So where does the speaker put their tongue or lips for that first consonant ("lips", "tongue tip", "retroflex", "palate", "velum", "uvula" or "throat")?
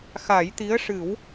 velum